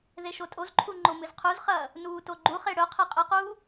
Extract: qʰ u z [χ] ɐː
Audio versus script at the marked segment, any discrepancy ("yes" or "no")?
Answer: no